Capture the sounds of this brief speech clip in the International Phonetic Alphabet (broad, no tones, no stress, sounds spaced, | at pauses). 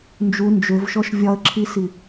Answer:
n d͡ʒ u n d͡ʒ ø v ʃ ɔ ʃ vʲ ɒ ə̯ ǁʰ i s i